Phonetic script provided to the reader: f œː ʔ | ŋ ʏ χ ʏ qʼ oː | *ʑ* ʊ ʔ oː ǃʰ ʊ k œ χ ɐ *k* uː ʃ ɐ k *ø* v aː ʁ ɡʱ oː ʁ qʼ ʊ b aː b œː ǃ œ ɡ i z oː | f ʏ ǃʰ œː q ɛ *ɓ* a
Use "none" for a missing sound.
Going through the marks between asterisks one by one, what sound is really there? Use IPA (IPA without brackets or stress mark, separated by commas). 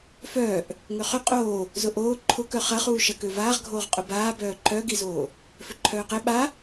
z, χ, ø, ɓ